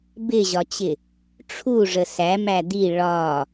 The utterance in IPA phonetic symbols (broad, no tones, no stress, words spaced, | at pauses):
bɪʑɒt͡ɕɪ | ʈ͡ʂʰuʐə sæmæ d̪i ɭɒ